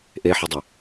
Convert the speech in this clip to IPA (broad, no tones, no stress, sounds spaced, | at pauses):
ʔ e ħ ɵ dˤ ɵ